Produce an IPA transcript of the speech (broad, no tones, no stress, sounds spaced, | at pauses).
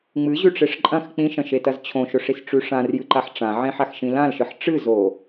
ŋ͡m ɨ ʑ ʉ ʈ͡ʂ e ʂ ǃʼ ɐ̃ x k͡p ĩ ʃ ɐ̃ ʃ e t ɐ z t͡ɕʰ õ ʃ ɵ ʂ i s ʈ͡ʂ ʉ ʂ ã r j ɨ ǃ a ħ ʈ͡ʂ ã ʕ ẽ ħ a x ʃ ĩ l ã l ʃ ɨ ħ ʈ͡ʂ ɨ z o